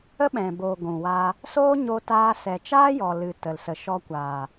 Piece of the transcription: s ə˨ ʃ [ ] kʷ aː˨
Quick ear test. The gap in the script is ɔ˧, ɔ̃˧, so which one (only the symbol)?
ɔ˧